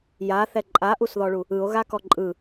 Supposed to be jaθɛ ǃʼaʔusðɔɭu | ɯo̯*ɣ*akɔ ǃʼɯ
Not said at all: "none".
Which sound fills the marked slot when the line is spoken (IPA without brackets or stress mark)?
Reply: ɣ